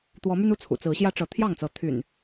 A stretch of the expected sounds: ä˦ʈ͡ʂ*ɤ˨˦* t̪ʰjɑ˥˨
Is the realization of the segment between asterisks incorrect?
no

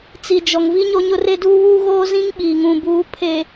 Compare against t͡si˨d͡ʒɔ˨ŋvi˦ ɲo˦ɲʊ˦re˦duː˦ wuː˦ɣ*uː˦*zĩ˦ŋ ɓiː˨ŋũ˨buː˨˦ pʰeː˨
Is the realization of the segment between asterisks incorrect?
yes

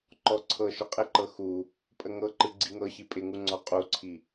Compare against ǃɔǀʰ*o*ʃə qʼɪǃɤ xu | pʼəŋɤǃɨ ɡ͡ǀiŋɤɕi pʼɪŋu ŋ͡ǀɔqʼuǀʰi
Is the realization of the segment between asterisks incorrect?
yes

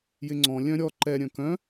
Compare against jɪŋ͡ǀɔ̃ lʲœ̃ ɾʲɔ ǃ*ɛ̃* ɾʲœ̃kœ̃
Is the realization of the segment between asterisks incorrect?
yes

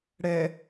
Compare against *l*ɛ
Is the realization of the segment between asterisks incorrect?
yes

